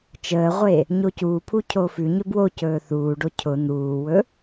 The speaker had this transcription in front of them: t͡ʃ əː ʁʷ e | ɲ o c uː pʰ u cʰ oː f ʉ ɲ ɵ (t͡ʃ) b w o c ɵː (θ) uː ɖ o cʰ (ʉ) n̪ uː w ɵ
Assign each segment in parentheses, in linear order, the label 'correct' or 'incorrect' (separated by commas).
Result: incorrect, correct, incorrect